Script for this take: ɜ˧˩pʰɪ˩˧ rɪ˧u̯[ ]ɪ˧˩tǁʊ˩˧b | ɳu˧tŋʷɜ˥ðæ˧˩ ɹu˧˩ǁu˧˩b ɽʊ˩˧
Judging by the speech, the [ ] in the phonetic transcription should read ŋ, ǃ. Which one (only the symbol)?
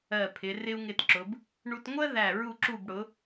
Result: ŋ